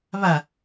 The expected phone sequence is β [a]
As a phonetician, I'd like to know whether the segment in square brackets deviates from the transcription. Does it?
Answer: no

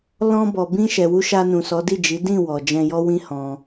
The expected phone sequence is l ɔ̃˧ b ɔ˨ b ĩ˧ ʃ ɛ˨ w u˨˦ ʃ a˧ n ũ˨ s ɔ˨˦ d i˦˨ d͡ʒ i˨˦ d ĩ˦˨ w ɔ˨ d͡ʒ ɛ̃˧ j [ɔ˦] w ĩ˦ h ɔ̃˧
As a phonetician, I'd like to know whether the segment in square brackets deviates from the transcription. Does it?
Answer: no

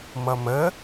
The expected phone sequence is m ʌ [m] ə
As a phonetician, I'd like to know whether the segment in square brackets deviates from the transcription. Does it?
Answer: no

